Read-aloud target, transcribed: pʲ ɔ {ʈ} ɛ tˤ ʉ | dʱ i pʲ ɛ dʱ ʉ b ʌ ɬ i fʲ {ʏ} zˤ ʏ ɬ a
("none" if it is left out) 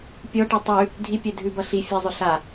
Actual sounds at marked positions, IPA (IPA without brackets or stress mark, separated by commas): ʈ, ɛ